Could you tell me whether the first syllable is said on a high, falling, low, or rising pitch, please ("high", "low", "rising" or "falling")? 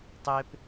high